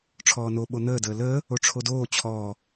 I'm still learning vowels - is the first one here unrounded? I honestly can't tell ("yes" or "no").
no